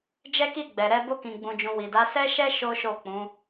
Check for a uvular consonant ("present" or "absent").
absent